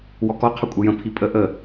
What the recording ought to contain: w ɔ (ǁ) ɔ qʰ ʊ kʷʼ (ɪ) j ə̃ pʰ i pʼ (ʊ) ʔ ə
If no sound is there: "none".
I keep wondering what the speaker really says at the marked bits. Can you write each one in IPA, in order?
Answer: k, ɪ, ə

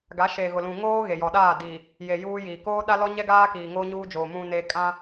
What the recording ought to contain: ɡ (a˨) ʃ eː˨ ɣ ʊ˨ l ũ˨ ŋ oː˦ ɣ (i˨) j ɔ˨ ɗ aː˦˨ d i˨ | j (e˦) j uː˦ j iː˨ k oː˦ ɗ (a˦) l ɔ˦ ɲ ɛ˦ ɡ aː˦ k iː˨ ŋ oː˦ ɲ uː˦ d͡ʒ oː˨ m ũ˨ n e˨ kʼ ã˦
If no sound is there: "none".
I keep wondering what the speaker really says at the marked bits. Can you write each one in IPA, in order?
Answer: a˨˦, e˨, e˨, a˦

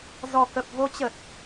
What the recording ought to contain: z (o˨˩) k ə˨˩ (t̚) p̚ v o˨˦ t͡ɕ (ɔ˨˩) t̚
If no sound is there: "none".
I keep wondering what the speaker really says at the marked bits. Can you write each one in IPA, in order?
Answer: ɔ˨˩, none, ə˨˩

